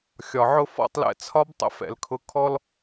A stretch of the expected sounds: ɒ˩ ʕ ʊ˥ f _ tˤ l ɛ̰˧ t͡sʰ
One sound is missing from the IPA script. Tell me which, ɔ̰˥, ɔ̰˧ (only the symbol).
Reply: ɔ̰˧